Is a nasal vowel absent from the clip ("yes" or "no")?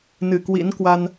yes